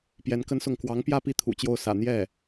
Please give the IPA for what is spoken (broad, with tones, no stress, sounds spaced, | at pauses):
p j ɛ˧˥ n k ə˥ n s ʊ˥˩ ŋ k w ɑ˧˥ ŋ p j ä˥˧ p i˥˩ t̪ʰ ṵ˨˩ t͡ɕ j o˥˩ ʊ̯ s ä̰˨˩ n̪ j ɛ˥˩